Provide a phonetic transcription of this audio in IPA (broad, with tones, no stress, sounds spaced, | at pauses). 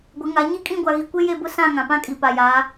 ɡʷ ɪ˨˦ ŋ a˨˦ ɲ i˦ kʼ ĩ˦˨ ɡʷ a˨ ɣ i˨ kʷ e˦ j e˦˨ b ʊ˦ s ã˦˨ ŋ ã˨ p ã˦ kʼ i˨ p a˨ j aː˨˦